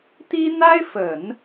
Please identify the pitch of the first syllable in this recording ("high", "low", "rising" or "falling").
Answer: high